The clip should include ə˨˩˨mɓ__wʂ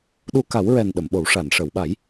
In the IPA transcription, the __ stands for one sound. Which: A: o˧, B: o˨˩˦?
B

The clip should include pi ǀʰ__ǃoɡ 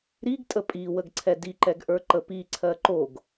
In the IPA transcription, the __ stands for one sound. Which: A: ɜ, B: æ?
A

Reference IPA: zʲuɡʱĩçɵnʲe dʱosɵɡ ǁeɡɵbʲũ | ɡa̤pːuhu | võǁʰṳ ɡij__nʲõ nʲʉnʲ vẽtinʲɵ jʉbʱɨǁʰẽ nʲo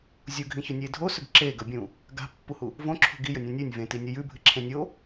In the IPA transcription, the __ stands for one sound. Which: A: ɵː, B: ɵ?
B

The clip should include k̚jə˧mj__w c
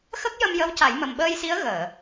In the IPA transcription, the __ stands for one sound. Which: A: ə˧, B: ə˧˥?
B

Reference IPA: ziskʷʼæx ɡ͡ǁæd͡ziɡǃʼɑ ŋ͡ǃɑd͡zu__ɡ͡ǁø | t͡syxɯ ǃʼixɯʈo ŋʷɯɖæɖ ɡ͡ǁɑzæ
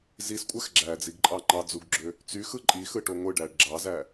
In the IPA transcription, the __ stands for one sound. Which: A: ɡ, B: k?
A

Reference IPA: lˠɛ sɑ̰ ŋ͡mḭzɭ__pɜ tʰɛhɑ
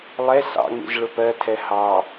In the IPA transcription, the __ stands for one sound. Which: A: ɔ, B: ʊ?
B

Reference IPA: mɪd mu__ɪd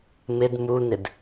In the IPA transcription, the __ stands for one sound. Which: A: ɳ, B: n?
B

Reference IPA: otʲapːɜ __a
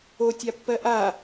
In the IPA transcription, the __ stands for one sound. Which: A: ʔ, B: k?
A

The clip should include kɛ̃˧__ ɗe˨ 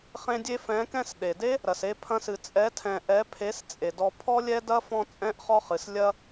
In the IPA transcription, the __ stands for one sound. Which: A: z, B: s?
B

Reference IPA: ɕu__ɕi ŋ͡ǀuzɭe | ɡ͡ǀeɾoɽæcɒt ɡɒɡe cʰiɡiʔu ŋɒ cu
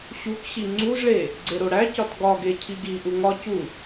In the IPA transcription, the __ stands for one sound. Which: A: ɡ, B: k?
B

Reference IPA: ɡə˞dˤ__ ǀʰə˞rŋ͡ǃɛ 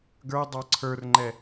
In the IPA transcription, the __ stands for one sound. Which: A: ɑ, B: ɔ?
A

